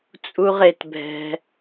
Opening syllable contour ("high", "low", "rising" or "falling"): high